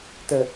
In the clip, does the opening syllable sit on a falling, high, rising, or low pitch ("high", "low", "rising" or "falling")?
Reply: low